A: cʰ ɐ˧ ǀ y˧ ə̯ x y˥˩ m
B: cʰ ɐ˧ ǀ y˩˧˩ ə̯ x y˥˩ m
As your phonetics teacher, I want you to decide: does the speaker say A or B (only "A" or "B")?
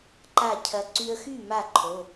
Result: A